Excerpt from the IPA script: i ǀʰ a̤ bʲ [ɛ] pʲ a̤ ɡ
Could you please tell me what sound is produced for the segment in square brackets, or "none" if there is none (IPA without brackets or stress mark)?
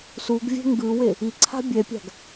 ɛ